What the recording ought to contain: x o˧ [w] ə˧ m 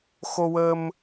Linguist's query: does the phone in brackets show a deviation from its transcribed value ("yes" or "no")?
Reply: no